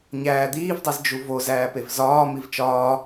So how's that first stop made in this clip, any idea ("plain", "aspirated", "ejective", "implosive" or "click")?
plain